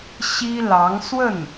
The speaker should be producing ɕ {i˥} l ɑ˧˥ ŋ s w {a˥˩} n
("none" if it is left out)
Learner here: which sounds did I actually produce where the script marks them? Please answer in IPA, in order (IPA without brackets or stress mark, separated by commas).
i˥, ə˥˩